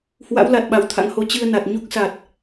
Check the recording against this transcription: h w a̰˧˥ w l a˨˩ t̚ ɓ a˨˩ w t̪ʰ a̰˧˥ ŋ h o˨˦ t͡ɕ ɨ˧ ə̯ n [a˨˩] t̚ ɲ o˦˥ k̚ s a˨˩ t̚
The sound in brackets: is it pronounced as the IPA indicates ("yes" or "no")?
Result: yes